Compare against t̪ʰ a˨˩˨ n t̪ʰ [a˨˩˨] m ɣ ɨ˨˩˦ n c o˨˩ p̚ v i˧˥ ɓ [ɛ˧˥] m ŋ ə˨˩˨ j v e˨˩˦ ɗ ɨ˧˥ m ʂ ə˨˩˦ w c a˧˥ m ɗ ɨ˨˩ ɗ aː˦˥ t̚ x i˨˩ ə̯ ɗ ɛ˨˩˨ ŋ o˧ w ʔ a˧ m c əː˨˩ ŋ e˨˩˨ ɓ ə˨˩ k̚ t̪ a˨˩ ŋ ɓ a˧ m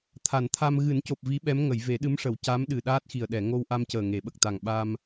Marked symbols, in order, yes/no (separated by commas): no, yes